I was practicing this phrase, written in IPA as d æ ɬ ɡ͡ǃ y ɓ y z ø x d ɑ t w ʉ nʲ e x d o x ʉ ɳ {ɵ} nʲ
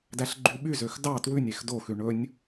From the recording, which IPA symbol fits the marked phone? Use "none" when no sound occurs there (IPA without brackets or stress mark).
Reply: ɵ